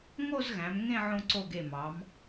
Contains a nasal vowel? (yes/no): yes